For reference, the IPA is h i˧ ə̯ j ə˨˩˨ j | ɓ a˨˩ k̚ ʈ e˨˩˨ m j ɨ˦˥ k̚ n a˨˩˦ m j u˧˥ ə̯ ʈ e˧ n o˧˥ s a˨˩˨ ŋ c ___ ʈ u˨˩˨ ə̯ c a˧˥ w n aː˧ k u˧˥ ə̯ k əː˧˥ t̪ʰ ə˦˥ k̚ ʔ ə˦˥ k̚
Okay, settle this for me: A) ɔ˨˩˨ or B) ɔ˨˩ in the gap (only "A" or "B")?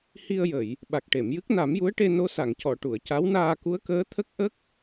A